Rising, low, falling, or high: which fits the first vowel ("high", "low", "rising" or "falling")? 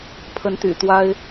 rising